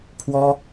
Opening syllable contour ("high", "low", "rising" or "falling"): high